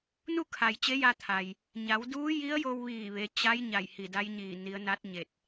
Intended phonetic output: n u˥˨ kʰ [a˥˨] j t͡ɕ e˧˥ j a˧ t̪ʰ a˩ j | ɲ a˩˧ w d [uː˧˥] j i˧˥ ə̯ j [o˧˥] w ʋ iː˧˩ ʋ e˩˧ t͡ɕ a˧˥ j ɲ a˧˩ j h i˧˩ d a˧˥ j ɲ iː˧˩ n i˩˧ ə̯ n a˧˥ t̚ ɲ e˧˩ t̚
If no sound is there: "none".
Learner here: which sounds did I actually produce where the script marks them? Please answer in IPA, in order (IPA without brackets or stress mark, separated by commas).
a˩, uː˧˥, o˧